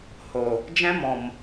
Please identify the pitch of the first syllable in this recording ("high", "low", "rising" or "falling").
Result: low